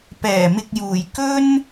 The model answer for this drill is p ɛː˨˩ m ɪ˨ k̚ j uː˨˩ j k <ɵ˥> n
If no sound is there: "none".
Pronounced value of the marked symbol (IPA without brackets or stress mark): ɵ˥